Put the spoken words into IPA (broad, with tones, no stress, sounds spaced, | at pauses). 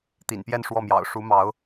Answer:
t̪ ḭ˨˩ n p j ɛ˥˧ n ʂ w ɔ˥˩ m j ɑ̰˨˩ ʊ̯ ʂ u˧˥ m ɑ˧˥ ʊ̯